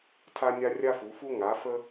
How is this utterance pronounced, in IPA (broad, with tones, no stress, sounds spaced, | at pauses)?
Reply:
tʰ a˦ nʲ a˦ rʲ a˦ f u˩˧ f u˦ ŋ a˩˧ f ə˦